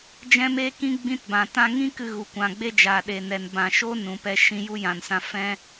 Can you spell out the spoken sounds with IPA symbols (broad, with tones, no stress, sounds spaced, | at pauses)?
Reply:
d͡ʒ ɛ̃˦ m e˦ k ĩ˦ ɡ͡b ĩ˧ t b ã˨ t ã˧ ŋ ĩ˦ k ɨ˧ ɣ u˨ kʷ ã˨ ɡ͡b e˦ d͡ʒ a˨ ɗ e˨ n ɛ˨ n b ã˨ ʃ o˦ n ũ˨ p ɛ˧ ʃ ĩ˧ j u˦ j ã˨ n s ã˧ f ɛ̃˦